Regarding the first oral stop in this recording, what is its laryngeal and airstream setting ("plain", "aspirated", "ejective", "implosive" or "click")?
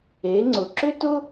click